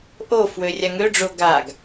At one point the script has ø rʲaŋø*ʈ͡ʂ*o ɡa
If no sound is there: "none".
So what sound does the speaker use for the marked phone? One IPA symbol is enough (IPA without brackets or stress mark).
ɖ͡ʐ